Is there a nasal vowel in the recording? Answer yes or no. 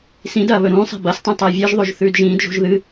yes